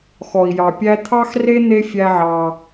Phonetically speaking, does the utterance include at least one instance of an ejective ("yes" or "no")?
no